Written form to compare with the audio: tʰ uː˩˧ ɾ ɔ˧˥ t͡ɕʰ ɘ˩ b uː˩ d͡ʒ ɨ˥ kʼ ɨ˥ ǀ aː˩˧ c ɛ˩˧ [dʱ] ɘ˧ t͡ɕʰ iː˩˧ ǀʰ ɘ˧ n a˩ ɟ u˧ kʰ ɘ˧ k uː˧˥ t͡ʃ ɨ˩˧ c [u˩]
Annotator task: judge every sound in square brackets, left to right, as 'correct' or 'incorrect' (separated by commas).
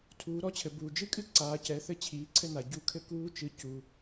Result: incorrect, correct